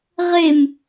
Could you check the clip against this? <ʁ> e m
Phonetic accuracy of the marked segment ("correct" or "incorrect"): correct